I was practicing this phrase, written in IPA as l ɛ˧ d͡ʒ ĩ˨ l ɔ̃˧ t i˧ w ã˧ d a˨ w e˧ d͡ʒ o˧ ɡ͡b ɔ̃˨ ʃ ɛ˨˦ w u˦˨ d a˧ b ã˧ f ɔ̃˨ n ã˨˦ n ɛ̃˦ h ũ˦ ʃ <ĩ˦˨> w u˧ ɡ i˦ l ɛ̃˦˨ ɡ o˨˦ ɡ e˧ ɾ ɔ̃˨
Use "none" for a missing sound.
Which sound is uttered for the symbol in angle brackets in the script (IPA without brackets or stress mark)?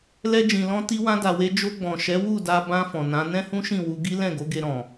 ĩ˦˨